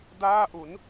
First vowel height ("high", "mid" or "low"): low